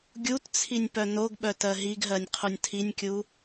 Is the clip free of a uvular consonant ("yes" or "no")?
no